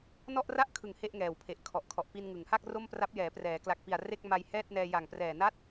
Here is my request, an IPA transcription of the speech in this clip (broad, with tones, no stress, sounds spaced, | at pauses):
n ɔ˥˩ ʔ r a˥˩ ʔ kʰ ɯ˨˩ ŋ h e˥˩ ʔ ŋ ɛː˨˩ w pʰ e˨˩ ʔ kʰ ɔ˨˩ ʔ kʰ ɔ˨˩ ʔ p i˧ n ŋ ɯ˩˦ ŋ h a˥˩ k̚ r o˥˩ m p r a˦˥ p̚ j ɛː˩˦ p r ɛː˩˦ k l a˨˩ k̚ p i˨˩ a̯ r e˥˩ k̚ m a˧ j h ɛː˥˩ t̚ n ɛː˧ j a˨˩ ŋ p r ɛː˨˩ n a˥˩ t̚